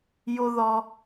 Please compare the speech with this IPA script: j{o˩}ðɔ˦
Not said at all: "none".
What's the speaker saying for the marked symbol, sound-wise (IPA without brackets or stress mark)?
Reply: o˥